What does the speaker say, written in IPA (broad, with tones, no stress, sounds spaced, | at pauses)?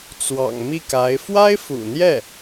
t͡s w ɑ̰˨˩ ŋ m i˥˩ k a˧˥ ɪ̯ f w a˥ ɪ̯ f ṵ˨˩ n̪ j ɛ˥˩